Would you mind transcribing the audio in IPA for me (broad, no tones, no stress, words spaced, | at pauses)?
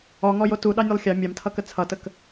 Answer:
ɔŋɔjo tuɗɑnʲolˠ xʲɑ mʲɑmtʰʌkə t͡sʰʌtək